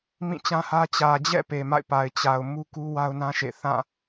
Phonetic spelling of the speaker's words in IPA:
m ĩ˦˨ t͡ɕ ã˦ h ä˦ t͡ɕ ä˨ d͡ʑ ɛ̰˦˨ p e˨ m a̰˦˨ ɪ̯ p a˨ ɪ̯ t͡ɕ a˨ ʊ̯ m u˦ k u˦ w a˦ ʊ̯ n ã˦ ʃ ḛ˦˨ θ ã˦˨

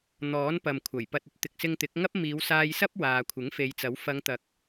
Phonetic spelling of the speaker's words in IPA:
n̪ ɔː˨˥ n p ɐ˨ m kʷʰ ɐ˨˩ j p ɐ˨ t̚ ɵ˨ t̚ t̪ ɪ˨ k̚ s ɪ˧ ŋ t̪ ɪ˨˥ k̚ ŋ ɐ˥ p̚ m iː˨˧ w s aː˧ j s ɐ˥ p̚ w aː˨ kʷʰ ɪ˨˥ ŋ f e˨˧ j t͡s ɐ˨˥ w f ɐ˨˧ ŋ t̪ ɐ˨ k̚

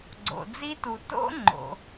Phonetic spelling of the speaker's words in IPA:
ɡ͡ǀ o̰˨ d͡z i˦˥ t u˨ t o̰˦˥ ŋ͡ǃ o̰˨

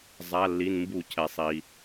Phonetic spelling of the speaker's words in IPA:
zˤ a˩˧˩ lː i˩˧˩ n m b u˧˩˧ cʰ ɛ˩ sˤ i˩

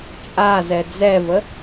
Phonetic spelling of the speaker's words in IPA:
t͡ʃʼ a z ɛ d͡z ɛ v ə

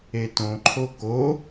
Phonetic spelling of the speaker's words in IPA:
e t õ ǃʰ o k o

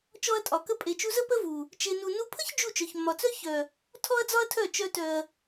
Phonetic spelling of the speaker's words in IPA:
t͡ʃ ɔ˧ ɐ̯ tʼ ɒ˨ k ə˧ pʼ e˨ t͡ʃ u˧ z ə˦ p ə˦ v u˨ | t͡ʃ e˧ n u˧ n u˧ pʰ ə˦ ç d͡ʒ u˦˨ t͡ʃ œ˨ ç mː ɒ˨ t͡s œ˦ ç œ˨ | tʰ ɔ˦ ɐ̯ d͡z ɒ˦ ɐ̯ tʰ œ˦˨ t͡ʃ œ˧ t œ˨ ɐ̯

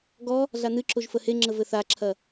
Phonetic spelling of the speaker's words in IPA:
ɡ ɔ | ɮ a n ɨ ǁ o ʒ f ə h e ŋ͡ǁ ə v ɘ θ a ǁʰ ɐ

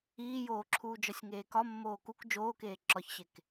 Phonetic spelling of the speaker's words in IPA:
iː j oː ǁʰ uː d͡ʒ ɒ sʲ ŋ eː k ɒ mː oː k u k d͡ʒ oː k eː ǁ ɒ ç ɕ e k

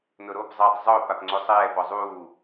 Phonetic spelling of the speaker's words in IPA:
n ʊ ɾ o p zˤ ɛː tˤ zˤ ʊː p a p ŋ͡ǀ o sˤ ɛː p ɔ zˤ uː

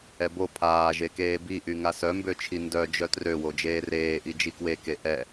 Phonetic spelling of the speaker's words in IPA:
ɛ b o pʰ aː ʒ e k eː b i ʔ y ŋ a s œ m b ø t͡ʃʰ i n d œ d͡ʒ œ t r ø w o d͡ʒ eː r eː ʔ i d͡ʒ i k w e k e ʔ ɛ

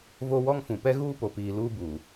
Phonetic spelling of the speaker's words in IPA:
v o˦ w ɔ˦ ŋ f ũ˨ p ɛ˦ ɣ uː˦ p o˨ p iː˨ l uː˦ b uː˨

